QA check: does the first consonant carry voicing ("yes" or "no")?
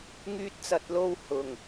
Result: yes